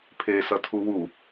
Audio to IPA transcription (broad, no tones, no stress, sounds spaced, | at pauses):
pʰ e s ʌ tʰ u w u